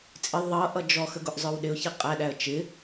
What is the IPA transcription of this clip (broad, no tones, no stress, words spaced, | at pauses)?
t͡sʼɪ ðˤʌ ʔʌd͡ʒɔxə ɡʊʔzˤə˞wɗɪʊ̯çi qʼæɗæə̯ t͡ʃɪ